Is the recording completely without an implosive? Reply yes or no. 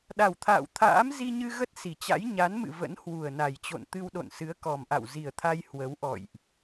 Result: no